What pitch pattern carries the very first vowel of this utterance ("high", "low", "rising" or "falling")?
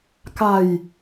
low